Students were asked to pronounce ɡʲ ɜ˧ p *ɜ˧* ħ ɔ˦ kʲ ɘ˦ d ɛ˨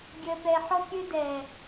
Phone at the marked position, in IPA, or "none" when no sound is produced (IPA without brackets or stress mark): ɛ˧